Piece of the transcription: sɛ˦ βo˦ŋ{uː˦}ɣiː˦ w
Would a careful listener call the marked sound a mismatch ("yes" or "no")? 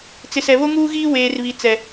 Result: no